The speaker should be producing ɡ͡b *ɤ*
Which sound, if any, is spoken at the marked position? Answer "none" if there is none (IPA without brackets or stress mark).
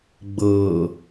ɤ